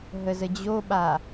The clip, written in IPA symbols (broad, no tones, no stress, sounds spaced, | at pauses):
ɦ ə z ə d͡ʑ o ɓ a